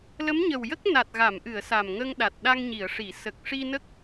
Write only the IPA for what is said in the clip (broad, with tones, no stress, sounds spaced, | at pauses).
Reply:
l ə˧˥ m ɲ ə˨˩ w j ə˦˥ k̚ n a˨˩ t̚ ɣ a˨˩˨ m ʔ ɨ˨˩˨ ə̯ s a˨˩ m ŋ ə˧ ŋ ɗ a˨˩ t̚ ɗ a˧ ŋ ɲ i˨˩˨ ə̯ ʂ i˨˩˨ s ə˨˩ k̚ ʂ i˧ n ə˦˥ k̚